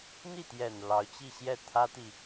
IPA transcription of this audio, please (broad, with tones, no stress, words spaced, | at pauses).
n̪i˥˩t̪jɛ˨˩n lɑ˧˥ʊ̯t͡ɕi˥˧ɕjɛ˥˩ t̪ʰä˥t̪i˨